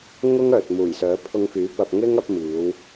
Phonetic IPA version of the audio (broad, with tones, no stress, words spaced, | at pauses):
ŋʊ˥ŋœː˨t̚ muː˨˩jsœː˨˥ pʰʊ˧ŋfyː˨˥pɐ˧p̚ ŋɪ˥ŋɐ˨˥p̚ miː˨˧w